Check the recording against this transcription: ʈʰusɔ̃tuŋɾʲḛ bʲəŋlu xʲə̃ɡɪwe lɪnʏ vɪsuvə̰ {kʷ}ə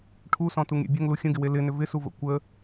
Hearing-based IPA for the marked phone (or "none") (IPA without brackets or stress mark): kʷ